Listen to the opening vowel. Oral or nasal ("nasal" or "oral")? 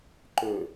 oral